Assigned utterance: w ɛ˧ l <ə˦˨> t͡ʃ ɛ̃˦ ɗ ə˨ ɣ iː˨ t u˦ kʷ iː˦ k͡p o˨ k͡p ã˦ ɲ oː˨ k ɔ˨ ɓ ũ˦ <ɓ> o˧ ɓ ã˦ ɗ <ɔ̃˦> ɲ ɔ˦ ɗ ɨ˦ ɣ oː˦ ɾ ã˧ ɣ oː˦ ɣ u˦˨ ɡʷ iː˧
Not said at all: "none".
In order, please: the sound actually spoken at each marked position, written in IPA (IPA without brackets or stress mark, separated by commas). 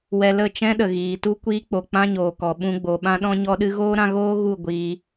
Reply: ə˦˨, ɡ͡b, ɔ̃˦